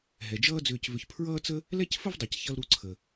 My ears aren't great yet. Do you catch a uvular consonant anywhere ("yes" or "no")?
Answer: no